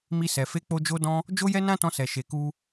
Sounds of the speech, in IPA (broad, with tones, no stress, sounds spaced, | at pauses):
m i˧ s ɛ˨ f e˨˦ k͡p o˧ d͡ʒ o˧ d ɔ̃˧ | d͡ʒ o˦ j ɛ˦ n ã˦ t ɔ̃˧ s ɛ˨ ʃ e˨ k u˧